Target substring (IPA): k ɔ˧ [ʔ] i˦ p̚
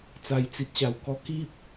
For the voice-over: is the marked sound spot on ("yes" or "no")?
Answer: no